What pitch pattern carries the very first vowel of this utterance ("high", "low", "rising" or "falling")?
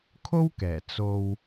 high